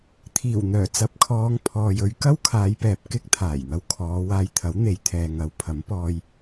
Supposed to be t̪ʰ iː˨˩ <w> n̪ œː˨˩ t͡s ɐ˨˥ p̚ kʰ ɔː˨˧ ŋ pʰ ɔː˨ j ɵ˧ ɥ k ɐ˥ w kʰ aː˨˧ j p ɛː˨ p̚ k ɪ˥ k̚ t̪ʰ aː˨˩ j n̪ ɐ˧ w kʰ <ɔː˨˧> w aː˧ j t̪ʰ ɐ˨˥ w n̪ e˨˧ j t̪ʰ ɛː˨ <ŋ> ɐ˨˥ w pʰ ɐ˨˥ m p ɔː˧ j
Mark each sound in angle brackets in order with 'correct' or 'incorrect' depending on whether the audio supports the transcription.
correct, correct, correct

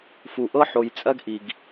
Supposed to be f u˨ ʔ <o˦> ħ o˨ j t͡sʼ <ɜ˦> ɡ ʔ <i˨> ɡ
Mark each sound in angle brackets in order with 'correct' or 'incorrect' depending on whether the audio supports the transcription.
incorrect: ɤ˦, correct, correct

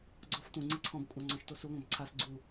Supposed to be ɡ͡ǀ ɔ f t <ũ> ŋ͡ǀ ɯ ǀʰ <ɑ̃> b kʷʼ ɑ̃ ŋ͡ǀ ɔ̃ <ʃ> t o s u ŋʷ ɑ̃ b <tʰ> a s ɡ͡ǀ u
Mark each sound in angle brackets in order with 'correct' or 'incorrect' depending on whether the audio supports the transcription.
correct, incorrect: ɔ̃, correct, incorrect: ǀʰ

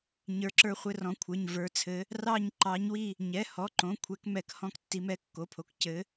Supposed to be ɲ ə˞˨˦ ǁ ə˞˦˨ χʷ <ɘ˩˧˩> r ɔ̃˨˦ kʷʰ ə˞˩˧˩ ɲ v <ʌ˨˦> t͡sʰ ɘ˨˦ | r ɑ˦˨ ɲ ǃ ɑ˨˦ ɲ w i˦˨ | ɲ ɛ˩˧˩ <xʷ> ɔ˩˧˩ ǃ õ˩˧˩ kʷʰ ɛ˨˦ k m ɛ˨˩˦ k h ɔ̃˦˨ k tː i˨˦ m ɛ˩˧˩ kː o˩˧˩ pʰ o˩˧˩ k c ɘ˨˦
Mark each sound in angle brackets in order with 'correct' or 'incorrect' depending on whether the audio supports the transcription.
incorrect: ɘ˦˨, incorrect: ə˞˨˦, incorrect: h

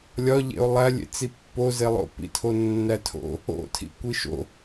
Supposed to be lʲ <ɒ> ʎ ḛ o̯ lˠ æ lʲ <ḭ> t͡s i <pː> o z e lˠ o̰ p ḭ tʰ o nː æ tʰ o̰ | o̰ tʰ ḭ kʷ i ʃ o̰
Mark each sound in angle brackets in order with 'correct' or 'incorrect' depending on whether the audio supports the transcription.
correct, incorrect: ḛ, correct

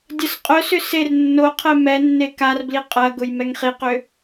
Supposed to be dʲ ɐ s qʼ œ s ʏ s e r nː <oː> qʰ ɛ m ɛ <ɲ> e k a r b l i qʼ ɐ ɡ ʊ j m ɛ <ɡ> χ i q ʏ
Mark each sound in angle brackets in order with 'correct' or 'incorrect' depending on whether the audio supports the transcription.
incorrect: o, incorrect: nː, incorrect: ŋ

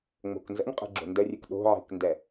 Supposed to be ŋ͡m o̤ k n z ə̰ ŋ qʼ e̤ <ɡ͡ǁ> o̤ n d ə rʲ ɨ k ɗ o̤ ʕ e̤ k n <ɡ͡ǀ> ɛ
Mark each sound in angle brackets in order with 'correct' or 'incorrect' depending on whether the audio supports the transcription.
correct, incorrect: d

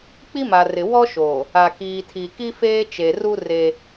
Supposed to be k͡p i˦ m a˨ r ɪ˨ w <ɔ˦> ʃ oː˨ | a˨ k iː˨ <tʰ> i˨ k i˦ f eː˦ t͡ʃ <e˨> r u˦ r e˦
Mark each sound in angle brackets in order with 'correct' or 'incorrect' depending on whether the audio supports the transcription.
correct, correct, correct

